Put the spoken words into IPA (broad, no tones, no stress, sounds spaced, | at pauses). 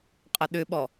qʼ ɐ ɗ ʏ ɓ ɔ